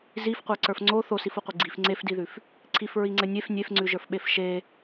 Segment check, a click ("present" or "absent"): present